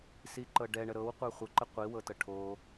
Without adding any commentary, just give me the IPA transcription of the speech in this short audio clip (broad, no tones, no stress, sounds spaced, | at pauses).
s i ǃ ɤ ɖ ɛ ɳ ə ɾ ɤ w qʷ ə˞ χʷ ə ǃ ə qʷ i w ɤ t ɤ ʈʰ o